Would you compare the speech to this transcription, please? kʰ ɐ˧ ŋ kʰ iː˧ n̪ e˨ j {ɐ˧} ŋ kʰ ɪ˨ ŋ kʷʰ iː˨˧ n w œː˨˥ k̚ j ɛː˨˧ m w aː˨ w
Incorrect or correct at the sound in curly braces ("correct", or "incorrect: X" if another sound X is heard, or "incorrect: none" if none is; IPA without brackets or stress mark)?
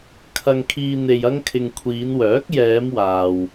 correct